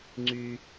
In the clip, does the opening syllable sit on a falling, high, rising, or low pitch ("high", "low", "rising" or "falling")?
high